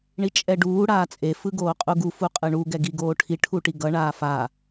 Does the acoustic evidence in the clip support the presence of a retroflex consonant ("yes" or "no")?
yes